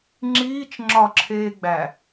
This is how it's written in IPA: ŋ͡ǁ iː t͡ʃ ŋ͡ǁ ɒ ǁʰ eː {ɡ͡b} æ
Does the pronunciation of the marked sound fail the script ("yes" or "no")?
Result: no